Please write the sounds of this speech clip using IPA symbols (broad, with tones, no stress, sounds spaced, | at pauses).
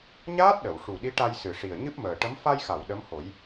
ɲ aː˦˥ t̚ ɗ ə˨˩˨ w ʂ u˨˩ ɗ i˧˥ ʈ a˧ j s ɨ˨˩ ʂ i˨˩ ə̯ ɲ ɨ˦˥ p̚ m əː˨˩ ʈ ə˧˥ m f a˧ j x a˨˩˨ w ɗ ə˧˥ m h o˨˩˦ j